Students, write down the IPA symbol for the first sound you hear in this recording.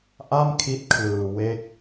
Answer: ʔ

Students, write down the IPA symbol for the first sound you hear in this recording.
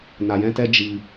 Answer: n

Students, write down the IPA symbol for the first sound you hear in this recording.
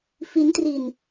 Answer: f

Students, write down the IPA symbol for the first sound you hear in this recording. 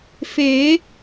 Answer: f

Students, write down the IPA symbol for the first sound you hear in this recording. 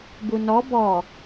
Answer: b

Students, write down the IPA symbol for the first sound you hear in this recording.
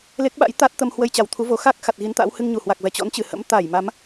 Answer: l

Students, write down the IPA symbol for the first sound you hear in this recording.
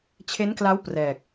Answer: t͡ɕʰ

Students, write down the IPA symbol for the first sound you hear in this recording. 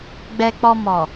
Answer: ɡ͡b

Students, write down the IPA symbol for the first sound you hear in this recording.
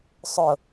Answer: sˤ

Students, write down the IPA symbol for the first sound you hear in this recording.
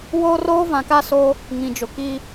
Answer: w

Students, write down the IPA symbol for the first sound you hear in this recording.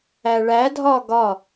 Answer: æ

